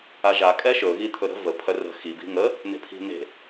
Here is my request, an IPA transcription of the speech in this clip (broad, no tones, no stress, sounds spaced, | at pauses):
a ʒ a kʼ ɛ ʃ ɵ ɣ i t̪ʰ ɵ ɾ ə̤ v ə pʰ œ r ə̤ x i b i̤ ŋ ə | n e̤ pʰ i̤ n e̤